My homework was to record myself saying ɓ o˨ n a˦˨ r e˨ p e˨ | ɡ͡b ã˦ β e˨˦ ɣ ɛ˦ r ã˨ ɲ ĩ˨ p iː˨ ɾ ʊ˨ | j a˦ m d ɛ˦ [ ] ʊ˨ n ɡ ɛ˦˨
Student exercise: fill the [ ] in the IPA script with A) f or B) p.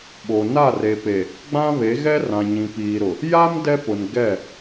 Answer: B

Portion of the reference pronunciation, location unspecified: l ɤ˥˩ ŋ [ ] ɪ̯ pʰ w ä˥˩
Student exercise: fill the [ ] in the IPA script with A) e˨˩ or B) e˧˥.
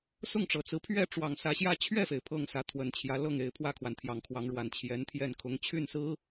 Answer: A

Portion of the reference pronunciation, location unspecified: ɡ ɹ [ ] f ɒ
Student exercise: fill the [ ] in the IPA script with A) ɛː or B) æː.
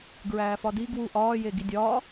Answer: B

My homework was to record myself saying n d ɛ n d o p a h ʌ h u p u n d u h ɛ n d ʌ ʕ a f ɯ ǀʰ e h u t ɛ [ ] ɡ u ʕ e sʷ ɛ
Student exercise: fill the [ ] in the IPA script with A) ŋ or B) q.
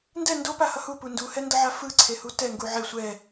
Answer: A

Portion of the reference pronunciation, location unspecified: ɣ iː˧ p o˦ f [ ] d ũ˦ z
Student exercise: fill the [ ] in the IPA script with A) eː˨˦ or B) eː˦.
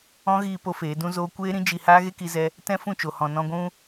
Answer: A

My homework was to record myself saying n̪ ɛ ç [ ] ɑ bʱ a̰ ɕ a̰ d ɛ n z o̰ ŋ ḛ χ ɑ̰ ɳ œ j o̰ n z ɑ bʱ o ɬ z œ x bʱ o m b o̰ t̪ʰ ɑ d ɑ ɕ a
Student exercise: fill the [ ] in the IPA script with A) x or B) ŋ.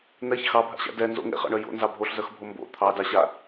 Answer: A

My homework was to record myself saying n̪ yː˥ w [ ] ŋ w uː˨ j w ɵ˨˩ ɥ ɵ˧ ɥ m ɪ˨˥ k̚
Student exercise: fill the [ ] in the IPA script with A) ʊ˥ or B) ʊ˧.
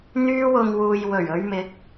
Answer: B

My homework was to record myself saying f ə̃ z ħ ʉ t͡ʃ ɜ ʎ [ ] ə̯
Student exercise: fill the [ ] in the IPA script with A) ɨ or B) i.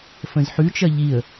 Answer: B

